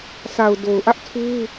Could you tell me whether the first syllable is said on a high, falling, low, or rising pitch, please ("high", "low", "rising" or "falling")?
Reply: low